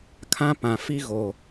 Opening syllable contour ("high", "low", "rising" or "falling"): high